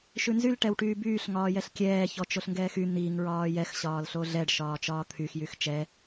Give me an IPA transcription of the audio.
ʃ ʉ n z y l ʈ ɛ w ʈ yː b yː ɬ ŋ ɒː j ɛ ɬ kʲ ɛː ç ɔ t͡ʃ o ɬ ŋ ɡ ɛː x y n̪ i ŋ ɹ ɒː j ɛ x ɕ ɒː l ɬ o ɮ ɛ ɖ ʃ ɒː t͡ʃ ɒː t̪ʰ y x j y x t͡ʃ ɛ

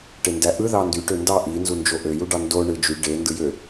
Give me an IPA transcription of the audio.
ʈ e n d æ ʔ ɯ ð ɑ n d y ʈ ø n d ɑ ʔ i n z u n d͡ʒ o ʔ ø j u ɖ ɑ n d o ɳ ɯ d͡ʒ y ɖ e n d ɯ j ø

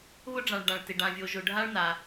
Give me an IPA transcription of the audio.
β ʊ˥ ɖ͡ʐ ã˩ ɭ ɖ ã˩ ɭ t ɪ˩ ɖ ã˩ vʲ o˩ ʒ ʊ˩ ɖʱ a˥ ɭ n a˩

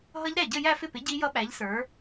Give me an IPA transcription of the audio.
ɦ ʌ˦˥ ʎ ɾ æ˥˩ ɟ ə˥˧ j æ˥˧ f ɪ˥˩ p ɪ˨˥ ɟ i˦˥ j ʌ˦˥ ɓ æ˨˥ ʎ s ə˞˨˥

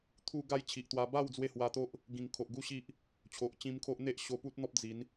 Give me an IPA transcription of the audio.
t̪ʰ u˧ ɡ a˥˧ j t͡ɕʰ i˨ ʔ t̪ w a˧ b a˥˧ w d͡z w e˥˧ h w a˧ t̪ o˦ ʔ | ɡ ĩ˨˩ ŋ kʰ o˨ ʔ ɡ u˦ ɕ i˦ ʔ | t͡ɕʰ o˨ ʔ t͡ɕ ĩ˧ m kʰ o˦ ʔ n̪ e˦ ʔ ɕ o˧ p u˦ t̚ n̪ ɔ˦ p̚ d͡z i˨˦ n

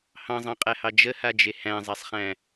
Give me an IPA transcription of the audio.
h ɑ̃ zˤ ɑ̃ qʼ æ h ɑ d͡ʒ ə h a d͡ʒ e h æ̃ zˤ a sˤ χ æ̃

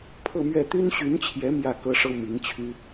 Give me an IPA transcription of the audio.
pʰ ɤ˥˧ m ɥ ɛ˥˩ t̪ y˥ n ɕ y˧˥ n t͡ɕʰ j ɛ˧˥ m j ä˥˩ k ɤ˥ ʂ ɤ˥ m i˧˥ ŋ t͡ɕʰ y˥

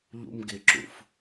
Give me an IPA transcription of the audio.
ʎ ṵ m ɡ ɪ ǁ ṵ f

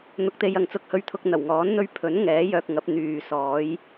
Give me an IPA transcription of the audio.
n̪ ʊ˨ k̚ t̪ e˨ j ɐ˨ ŋ t͡s ʊ˧ k̚ h ɵ˧ ɥ t̪ʰ ʊ˧ k̚ n̪ ɐ˨˩ w ŋ ɔː˨˥ n n̪ ɵ˥ ɥ pʰ ɵ˨˥ n ŋ ɛː˨˥ j œː˧ k̚ ŋ ɐ˨˥ p̚ n̪ yː˨ s ɔː˨˥ j

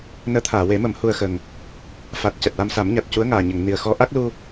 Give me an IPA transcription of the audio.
n əː˧˥ t̪ʰ aː˨˩˨ w e˨˩˦ m ə˨˩˦ m h u˧ ə̯ x ə˨˩ ŋ | f a˨˩ t̚ c ɛ˨˩ t̚ w a˧ m s a˨˩˦ m ɲ a˨˩ t̚ c u˧˥ ə̯ ŋ aː˨˩ ɲ ə˨˩˨ ŋ n i˨˩ ə̯ x ɔ˧˥ ʔ a˦˥ k̚ l u˧

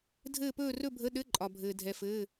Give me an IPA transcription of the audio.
dʱ ɘː˥˧ p ɵː˥˧ r ɵ˥˧ bʱ ə˧˥˧ ɗ ɘ˧˥˧ ǃʼ ɒ˩ bʱ ɘː˩ dʱ ɛ˩ f ɘː˩˧˩

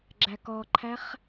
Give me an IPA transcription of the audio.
ɡ͡ǁ æ k ɔ ǃʰ æ χ

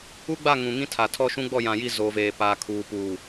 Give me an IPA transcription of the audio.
u˦ ɡ͡b a˦˨ ŋ ũ˨ ŋ ĩ˦ tʰ a˨ tʰ ɔ˦ ʃ ũ˦ ɡ͡b ɔ˦˨ j ã˨ j i˦˨ z o˨ v eː˨ p aː˨ kʰ uː˨ p uː˨

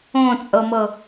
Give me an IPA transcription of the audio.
õ t͡sʼ ɤ m ɤ

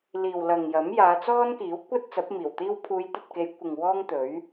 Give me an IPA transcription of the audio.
l iː˨ w l ɐ˨ ŋ j ɐ˨˥ m j aː˨˧ t͡s ɔː˥ n k iː˨˥ w kʷ ɐ˥ t̚ t͡s ɐ˨˥ p̚ m iː˨˩ w t̪ iː˥ w pʰ uː˨˧ j t̪ ɐ˨ t̚ k e˨˧ j kʷ ɪ˨ ŋ w ɔː˥ ŋ t̪ ɵ˨˥ ɥ

